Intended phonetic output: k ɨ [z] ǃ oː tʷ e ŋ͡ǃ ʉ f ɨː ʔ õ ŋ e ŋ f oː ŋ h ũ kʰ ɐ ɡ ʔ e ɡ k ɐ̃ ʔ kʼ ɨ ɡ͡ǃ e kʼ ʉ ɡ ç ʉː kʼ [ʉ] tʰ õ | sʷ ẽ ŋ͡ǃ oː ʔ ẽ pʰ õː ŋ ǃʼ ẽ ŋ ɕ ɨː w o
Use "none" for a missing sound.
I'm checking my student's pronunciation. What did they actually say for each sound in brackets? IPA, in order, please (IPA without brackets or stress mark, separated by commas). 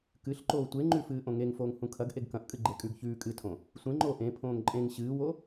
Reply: ɬ, ɨ